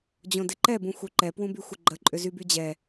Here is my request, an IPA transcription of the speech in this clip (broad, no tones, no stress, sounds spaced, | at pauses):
d͡ʑ õ d ɪ ǃ ɛ b ũ xʷ œ ǃ ɛ p w ũ b y xʷ ɪ ɡ͡ǃ ə ǃʼ ʏ z y b y d͡ʑ ɛ